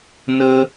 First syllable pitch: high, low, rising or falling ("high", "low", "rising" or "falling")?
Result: high